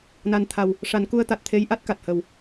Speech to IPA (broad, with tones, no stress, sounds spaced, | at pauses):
n a˨˩ n t̪ʰ a˨˩ w | ʂ a˨˩˦ n k u˧ ə̯ t̪ a˨˩ t̚ t̪ʰ e˧˥ j ʔ a˦˥ t̚ k a˨˩ t̚ h ə˨˩ w